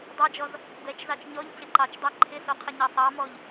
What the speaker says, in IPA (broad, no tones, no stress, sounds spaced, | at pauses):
dˤ ɑ d͡ʒ ɔ z | b ɛ t͡ʃ z ɑ t͡ʃ ɲ ɔ ʎ c ɪ ǃ ɑ t͡ʃ dˤ ɑ ǃʰ ɪ s o qʰ ɘ ɲ ɑ sˤ ɑ m ɔ ʎ